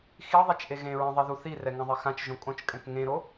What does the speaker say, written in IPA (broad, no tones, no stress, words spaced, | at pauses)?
xiðˤet͡ʃʔe ɣẽɹẽðˤeðu θirɛŋɛ̃ðˤi xãt͡ʃʒõ kʼõt͡ʃkʼɛ̃k ŋẽɾo